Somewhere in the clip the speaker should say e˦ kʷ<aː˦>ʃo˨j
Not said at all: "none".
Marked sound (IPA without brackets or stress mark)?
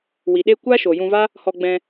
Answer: aː˦